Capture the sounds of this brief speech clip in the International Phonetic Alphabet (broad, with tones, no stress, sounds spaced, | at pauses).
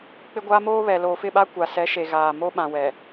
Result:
k͡p ɪ˦ ɡʷ aː˦ m oː˦ β ɛ˨ l oː˨ f ɪ˦˨ ɓ a˦ kʷ a˨ s ɛ˨˦ ʃ e˨ ɣ aː˨ m o˦ ɓ ã˨ w ɛ˨